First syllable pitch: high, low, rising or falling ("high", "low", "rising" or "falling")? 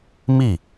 falling